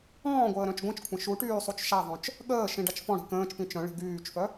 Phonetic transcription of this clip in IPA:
ɔ̃ː ɡʷ əː ɾ œ̃ t͡ʃ ɡʷ ĩ t͡ʃ kʷʰ ə̃ ʃ u ʈ yː sˤ u t͡ʃ ʃ a ðˤ œ̃ t͡ʃ | ɠ əː ʃ ĩ ɖ a t͡ʃ f ɔ̃ ɽ i̤ k ə̃ː t͡ʃ p ĩ t͡ʃ œ̃ ɭ i̤ ɡ yː t͡ʃ f œ

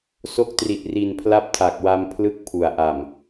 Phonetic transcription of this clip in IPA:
s o˦˥ k̚ t r i˨˩ t̚ r i˨˩ n pʰ l a˦˥ p̚ tʰ a˨˩ k̚ w a˧ m pʰ l ɯ˦˥ k̚ pʰ u˨˩ a̯ ʔ a˨˩ m

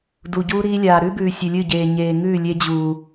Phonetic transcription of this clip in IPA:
d u˨ ɟ uː˦ ɾ iː˦ lʲ aː˨ ɾ ʉ˦ b ʉː˨ sʲ ɨ˨ lʲ ɨ˦˨ ɟ eː˨ ɲ eː˨ ŋ ʉː˦˨ lʲ e˦ d͡ʑ uː˨

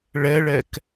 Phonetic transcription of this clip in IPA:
ɭ ɛ ɭ ɛ k

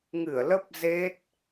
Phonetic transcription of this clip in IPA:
ŋ ɨ˧˩ ə̯ l ə˦˥ p̚ z e˦˥ t̚

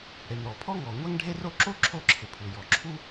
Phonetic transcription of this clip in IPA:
ɽ e˩ m ɾ ɔ˩ pʰ ɔ˥ ŋ ɔ˩ ŋʷ ɛ˥ ŋ ɖʱ e˥ r o˥ ǁ o˥ ǁʰ o˥ ǁʰ ɪ˩ pʰ u˩ j ɔ˩ ǁʰ u˥

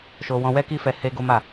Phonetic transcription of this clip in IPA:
ʃ o˧ w ɔ̃˧ w ɛ˦ k i˦ f ɛ˧ h e˦ ɡ o˦ m a˦˨

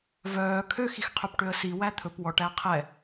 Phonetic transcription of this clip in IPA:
v œː kʰ ø x i x qʰ ø p ʈ ø ə̯ s i w æ t̪ʰ ɵ p w ɔ ʈ æ qʰ ɛ

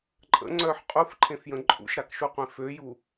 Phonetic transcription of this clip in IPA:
ǃʼ ə̰ ŋ͡ǀ œ ħ qʼ u f ǃʰ ẽ f j ə̃ ǃʼ ṵ ʃ ɾ a k ʃ u qʷ ẽ f ø j u

